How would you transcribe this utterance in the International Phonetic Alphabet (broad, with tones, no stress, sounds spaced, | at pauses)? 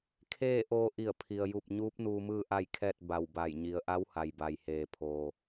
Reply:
kʰ eː˥˨ ʔ oː˧ ʔ i˧˩ ə̯ pʰ i˩ ə̯ j u˧˩ p̚ ɲ uː˧˥ p̚ n uː˧ m ɯː˥˨ ʔ a˥˨ j kʰ ɛː˥˨ t̚ b a˧˩ w b a˧˩ j ɲ i˩˧ ə̯ ʔ a˧˥ w h a˩ j b a˩ j h eː˩ pʰ oː˩